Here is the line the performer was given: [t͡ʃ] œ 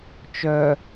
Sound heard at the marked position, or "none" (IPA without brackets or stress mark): t͡ʃ